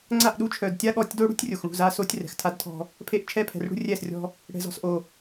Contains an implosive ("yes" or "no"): yes